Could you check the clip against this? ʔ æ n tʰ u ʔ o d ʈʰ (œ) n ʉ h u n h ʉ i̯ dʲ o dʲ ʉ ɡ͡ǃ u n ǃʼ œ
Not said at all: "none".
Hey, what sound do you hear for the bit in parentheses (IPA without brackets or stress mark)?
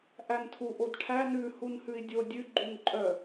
æ